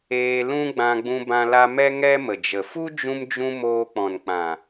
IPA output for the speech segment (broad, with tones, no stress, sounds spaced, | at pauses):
eː˧ l ũ˦ ɡ͡b ã˧ ɡ͡b ũ˧ b ã˧ l a˧ m ɛ˦ ŋ ɛ˦ m ə˨ d͡ʒ ə˨ f u˦ d͡ʒ ũ˧ m d͡ʒ ũ˧ m oː˧ k͡p ɔ̃˨ n k͡p ã˨